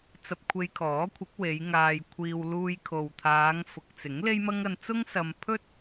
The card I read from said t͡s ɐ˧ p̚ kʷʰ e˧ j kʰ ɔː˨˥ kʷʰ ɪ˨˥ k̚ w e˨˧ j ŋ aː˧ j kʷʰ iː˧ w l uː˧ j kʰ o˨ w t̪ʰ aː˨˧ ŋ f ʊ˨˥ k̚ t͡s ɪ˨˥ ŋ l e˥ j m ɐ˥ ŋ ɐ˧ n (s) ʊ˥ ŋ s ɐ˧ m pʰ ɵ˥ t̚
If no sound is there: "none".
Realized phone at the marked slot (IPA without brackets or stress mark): t͡s